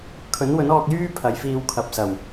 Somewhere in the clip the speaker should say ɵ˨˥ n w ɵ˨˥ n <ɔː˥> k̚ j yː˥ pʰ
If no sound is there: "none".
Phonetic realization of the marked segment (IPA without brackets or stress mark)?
ɔː˧